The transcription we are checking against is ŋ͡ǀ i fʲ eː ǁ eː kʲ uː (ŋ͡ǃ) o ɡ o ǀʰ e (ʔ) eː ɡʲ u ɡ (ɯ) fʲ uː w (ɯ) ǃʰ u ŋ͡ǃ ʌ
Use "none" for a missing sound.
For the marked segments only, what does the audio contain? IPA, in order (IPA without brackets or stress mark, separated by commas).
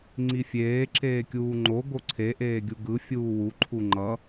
ŋ͡ǃ, ʔ, ɯ, u